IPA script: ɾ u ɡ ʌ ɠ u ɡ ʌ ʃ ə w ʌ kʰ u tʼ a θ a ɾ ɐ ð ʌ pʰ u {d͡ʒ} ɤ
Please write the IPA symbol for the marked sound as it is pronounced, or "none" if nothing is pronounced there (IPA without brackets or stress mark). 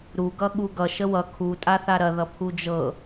d͡ʒ